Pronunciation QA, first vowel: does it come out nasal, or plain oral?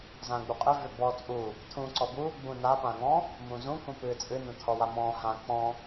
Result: nasal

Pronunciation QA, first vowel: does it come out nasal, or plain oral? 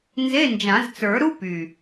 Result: oral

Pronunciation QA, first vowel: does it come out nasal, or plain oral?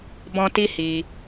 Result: nasal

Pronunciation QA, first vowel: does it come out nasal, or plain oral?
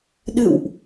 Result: oral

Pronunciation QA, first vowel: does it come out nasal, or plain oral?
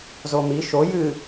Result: oral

